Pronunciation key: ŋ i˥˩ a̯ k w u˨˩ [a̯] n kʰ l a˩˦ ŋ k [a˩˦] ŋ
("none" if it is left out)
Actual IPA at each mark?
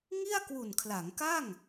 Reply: none, a˥˩

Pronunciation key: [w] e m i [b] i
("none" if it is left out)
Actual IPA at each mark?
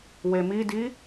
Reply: w, d

